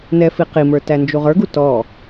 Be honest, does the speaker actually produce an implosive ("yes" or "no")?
no